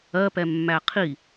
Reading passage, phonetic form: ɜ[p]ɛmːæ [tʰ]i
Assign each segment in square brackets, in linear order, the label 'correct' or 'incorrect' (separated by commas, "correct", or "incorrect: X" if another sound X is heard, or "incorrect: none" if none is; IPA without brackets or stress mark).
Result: correct, incorrect: qʰ